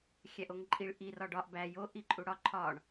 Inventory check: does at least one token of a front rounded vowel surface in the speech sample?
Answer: no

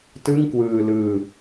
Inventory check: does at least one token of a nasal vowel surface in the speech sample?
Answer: no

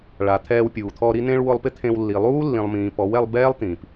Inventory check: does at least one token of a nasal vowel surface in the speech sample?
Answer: yes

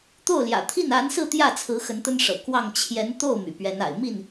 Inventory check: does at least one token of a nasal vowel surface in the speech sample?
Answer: no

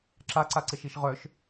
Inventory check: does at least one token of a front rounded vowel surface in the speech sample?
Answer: yes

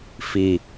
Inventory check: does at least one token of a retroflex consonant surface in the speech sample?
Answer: no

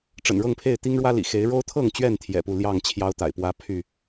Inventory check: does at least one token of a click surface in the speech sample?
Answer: no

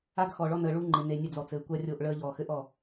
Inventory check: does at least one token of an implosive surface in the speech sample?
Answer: no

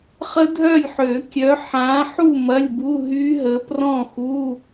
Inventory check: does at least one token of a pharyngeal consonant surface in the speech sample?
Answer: yes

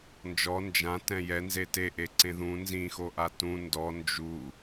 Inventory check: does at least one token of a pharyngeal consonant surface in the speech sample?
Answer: no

